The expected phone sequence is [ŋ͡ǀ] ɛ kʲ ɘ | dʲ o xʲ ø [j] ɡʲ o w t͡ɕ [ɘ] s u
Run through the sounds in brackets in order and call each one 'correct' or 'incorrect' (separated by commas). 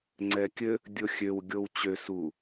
correct, incorrect, incorrect